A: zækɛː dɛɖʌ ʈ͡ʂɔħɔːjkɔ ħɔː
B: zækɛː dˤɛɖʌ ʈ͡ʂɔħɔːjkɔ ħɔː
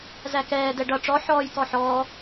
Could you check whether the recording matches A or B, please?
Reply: A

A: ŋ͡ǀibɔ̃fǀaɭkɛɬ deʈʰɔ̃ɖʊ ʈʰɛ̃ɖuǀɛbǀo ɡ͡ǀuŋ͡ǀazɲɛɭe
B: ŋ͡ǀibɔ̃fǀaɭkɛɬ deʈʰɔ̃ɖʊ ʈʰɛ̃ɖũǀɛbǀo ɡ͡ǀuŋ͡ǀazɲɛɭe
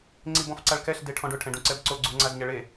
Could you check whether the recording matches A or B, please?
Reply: B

